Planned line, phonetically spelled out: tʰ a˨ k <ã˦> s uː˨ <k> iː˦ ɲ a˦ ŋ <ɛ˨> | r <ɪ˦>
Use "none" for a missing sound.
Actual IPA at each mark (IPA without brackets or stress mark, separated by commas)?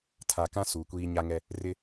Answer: ã˦, kʷ, ɛ˦, ɪ˦